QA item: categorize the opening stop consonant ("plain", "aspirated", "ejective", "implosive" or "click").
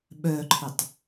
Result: implosive